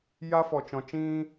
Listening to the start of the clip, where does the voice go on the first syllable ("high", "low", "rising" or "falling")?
high